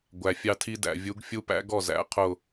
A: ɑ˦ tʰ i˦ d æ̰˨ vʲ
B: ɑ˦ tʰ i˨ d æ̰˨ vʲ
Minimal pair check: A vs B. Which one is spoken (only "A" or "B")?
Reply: A